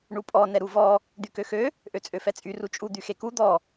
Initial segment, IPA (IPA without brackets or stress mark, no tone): ɳ